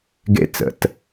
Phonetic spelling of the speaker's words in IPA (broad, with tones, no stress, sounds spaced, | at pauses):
ɡ ḛ˥ t͡s ə̰˩˧˩ t